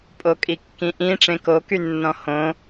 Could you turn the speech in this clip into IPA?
pʼokʼikːĩʔĩ ʈ͡ʂẽkoky nːɔ̃hõ

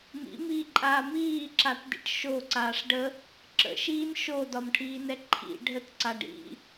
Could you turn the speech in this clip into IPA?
mḭmiːǃʼaː miːǁatdḭʈ ʃoǀaːʂ ɖə | ǁə̰ʃiːn ʃodɒmʈʰiːnɛ ǃʰḭ ɖʱətǀa ɖḭ

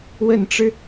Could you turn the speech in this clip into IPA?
wə˨˩nʈ͡ʂɻ̩˦

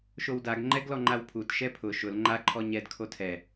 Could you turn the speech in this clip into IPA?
ʃowdaɡŋ͡ǃɛɡlɔ ŋ͡ǃawpʰut ʃɛpʰʊ ʃʊl ŋ͡ǃaǃʰɔ ɲɛd kʰotʰɛ

